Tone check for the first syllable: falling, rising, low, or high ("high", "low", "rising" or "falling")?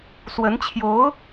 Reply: rising